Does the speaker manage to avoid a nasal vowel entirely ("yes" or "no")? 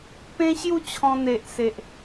no